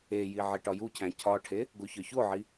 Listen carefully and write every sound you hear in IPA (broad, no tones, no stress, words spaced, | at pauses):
eji ʕiʈɒjucʰæ̃ cʰɒʈʰe | ɡoçɒçoʕi